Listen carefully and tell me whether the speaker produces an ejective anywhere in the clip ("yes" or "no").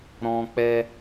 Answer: no